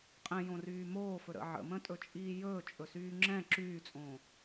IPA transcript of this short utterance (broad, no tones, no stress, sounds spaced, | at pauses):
qʼ ɛ̃ j õ r yː m oː f ɵ ɾ ə̰ ʕ ə̰ m ə̃ tʼ ɵ t͡ʃʼ iː j ɵː t͡ʃʼ ɵ s yː ŋ͡ǁ ɛ̃ ǁ yː t͡sʼ õː